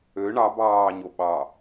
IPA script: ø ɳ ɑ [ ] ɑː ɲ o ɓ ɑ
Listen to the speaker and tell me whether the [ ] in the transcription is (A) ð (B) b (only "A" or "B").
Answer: B